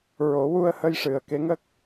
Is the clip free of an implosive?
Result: yes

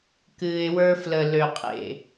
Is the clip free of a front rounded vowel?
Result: no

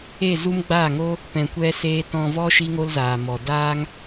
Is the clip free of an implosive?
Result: yes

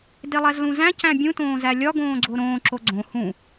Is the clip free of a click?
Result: no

